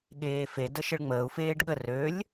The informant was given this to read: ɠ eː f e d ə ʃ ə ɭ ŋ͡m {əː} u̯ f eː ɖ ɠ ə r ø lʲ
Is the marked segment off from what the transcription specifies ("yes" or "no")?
no